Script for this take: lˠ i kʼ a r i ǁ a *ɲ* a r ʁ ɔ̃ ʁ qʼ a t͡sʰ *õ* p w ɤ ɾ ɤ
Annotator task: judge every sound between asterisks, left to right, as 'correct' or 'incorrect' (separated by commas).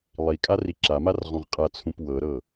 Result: incorrect, incorrect